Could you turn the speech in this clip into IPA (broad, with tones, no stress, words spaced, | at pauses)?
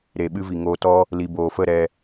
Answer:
ɾe˨ɓɨ˧vi˨ ŋoː˧tɔ˦ | li˨boː˨fə˦˨ɾɛ˧